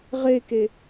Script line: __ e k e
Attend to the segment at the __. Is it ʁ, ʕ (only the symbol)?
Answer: ʁ